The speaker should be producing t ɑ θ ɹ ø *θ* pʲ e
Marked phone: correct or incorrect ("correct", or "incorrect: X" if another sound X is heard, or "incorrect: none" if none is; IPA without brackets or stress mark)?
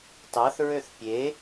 correct